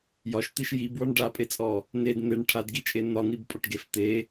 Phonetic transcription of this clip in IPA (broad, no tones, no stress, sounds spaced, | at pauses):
j ɒ ʃ t̪ i ʃ j i b w ɒ ɳ ɖ a pʼ e t͡sʼ ɔ | n e d n̪ e ɳ ʈʰ a d ɡ i t͡ʃʼ e n̪ ɒ n i b pʼ ɒ ʈ ɡ e f t̪ e